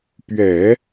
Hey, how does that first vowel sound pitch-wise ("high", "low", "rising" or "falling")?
low